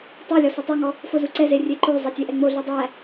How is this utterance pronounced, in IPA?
tˤ æ lʲ ɔ s o tˤ o ŋ ɔ | f o z u ǀ ɛ z e rʲ e ǃ o zˤ ɛ tʲ e ʔ ɛ ŋ͡m o ɮ u dˤ æ

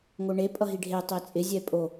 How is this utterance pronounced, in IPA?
ŋ o ɳ e pʼ ʌ ɦ i ɖʱ e tˤ e t͡sʼ ɪ zʲ ɛ pʼ o

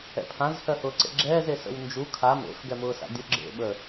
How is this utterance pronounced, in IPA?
ɛ̰ pʰ ã z h ɜ h ʊː ǀ ḛ ɡ͡ǁ ɛː z e s ə̰ w n d͡ʒ u kʰ a m ḛ f ɡ ɛ m ʊː s a̰ dʲ ʊ ɡ͡ǁ ḛ ɓ ə

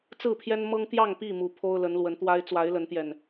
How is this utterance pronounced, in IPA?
t͡s ɹ̩˥˨ pʰ j ɛ˦ n m ɤ˦ ŋ t̪ j ɑ˥˨ ŋ p i˥˨ m u˨˩ pʰ o˦ ʊ̯ l ə˨˦ n l w ə˨˦ n t̪ w a˦ ɪ̯ t͡s w a˨˦ ɪ̯ l ə˨˦ n t̪ j ɛ˨˩ n

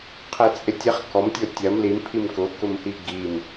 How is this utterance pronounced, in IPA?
qʰ e t͡sʼ ɪ tʲ e χ k ɔ m tʲ o tʲ ɐ m l i m pʰ i m k ʊ k ʊ m h i ɡ i m

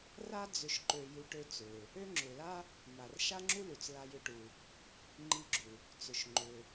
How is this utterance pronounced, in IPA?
r a˥ d͡z ʏ˧ ʃ ǃ ø˧ j u˧ ʈ ø˧ t͡s ø˩ | ø˥ ŋ͡ǁ ʏ˩ l a˥ | m a˩ r ʃ a˥ ŋ͡ǁ u˥ l u˩ t͡s l a˧ j ʏ˧ ʈ u˩ | ŋ͡ǃ i˧ ɡ͡ǁ u˩ | t͡s ʏ˩ ʃ ŋ͡ǃ ʏ˩

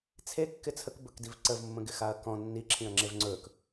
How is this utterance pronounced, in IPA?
t͡sʰ e kː ɪ t͡sʰ ə k b ɵ k d i v ǀ ə v mː ə̃ ɡ ɪ x a ɐ̯ k ɔ̃ nː i ǁʰ ĩ ɐ̯ ŋ͡ǁ e v ŋ͡ǀ ɵ k

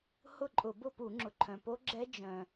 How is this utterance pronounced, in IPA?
h ʊ˥˨ ǃʼ ʊ˧˩˧ b ʊ˥˨ p u˧˩˧ ŋ͡ǁ ʊ˩ ǃʰ œ̃˩ p o˦˥ ɡ͡ǁ ɛ˦˥ d͡ʒ œ̃˩

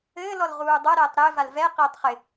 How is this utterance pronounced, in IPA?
ɘː l ɔ l ʁ uː dˤ ɤ ɾ ɛː tˤ ɾ ɘː v a l v ɛ q ɪː tˤ χ ɪ

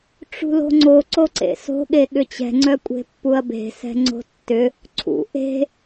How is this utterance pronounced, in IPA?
ʈ͡ʂ ṳ l o̤ ŋ͡ǀ o ǀ o ǀ ḛ s o̤ ɠ e ɠ ʏ t͡ɕ ɛ̤ ŋ͡ǀ œ kʷʼ e̤ pː u ɐ̯ b e̤ s ɛ̤ ŋ͡ǀ o̤ tː ʏ | ǀʰ ṵ ʔ e̤

